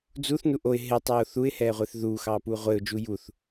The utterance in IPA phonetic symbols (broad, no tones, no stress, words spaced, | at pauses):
d͡zuθnu ʔoɪ̯ ɦɪtˤoː θuɪ̯hɛːʁʷɪːθ ðuːxɑːpuː ʁʷɪːʊ̯d͡ʒu juθ